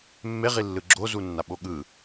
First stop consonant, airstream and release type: click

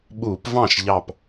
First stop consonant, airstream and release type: implosive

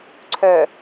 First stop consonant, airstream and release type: click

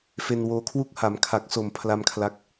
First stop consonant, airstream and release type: aspirated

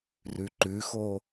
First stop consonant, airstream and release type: click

